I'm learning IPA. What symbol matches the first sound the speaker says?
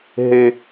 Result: ɦ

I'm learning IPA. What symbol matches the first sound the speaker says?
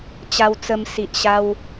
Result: t͡ɕ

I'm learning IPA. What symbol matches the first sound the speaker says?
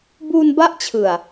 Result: b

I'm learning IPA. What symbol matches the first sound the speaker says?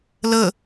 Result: l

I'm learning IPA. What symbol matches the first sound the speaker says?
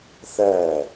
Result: θ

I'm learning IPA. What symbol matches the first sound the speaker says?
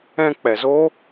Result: ɛ̃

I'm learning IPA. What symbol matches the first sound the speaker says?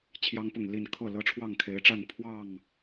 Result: t͡ɕʰ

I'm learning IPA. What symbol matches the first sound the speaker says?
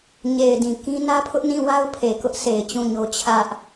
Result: ɲ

